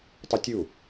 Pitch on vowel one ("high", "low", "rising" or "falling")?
high